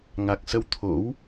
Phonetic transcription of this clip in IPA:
ŋa˨˩k̚ sə˧w t̪ʰo̰˧˥w

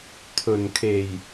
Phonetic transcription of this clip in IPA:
t̪ʰɵ˨˩nkʰe˨˩j

